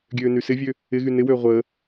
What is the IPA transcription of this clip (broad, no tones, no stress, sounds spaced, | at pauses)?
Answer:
ɡʲ øː n y s ɪ vʲ ø | ɪ ɣ y n ɪ w øː ʁʷ ə